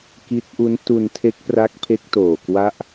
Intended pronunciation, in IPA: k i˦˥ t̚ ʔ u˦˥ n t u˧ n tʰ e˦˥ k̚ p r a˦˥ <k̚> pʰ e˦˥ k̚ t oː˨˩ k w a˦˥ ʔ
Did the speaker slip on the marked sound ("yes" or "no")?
no